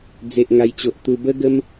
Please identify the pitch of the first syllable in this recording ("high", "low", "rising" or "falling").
low